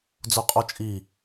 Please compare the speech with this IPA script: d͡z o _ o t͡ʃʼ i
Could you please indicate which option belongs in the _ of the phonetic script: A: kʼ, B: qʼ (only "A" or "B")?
B